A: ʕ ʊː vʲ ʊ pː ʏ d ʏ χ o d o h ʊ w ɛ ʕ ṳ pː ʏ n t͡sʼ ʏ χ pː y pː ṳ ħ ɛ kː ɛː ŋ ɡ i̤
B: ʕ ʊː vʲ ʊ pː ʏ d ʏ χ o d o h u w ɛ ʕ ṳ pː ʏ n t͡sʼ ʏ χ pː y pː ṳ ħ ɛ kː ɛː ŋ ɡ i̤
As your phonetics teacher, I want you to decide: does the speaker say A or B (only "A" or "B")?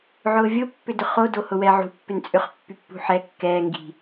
A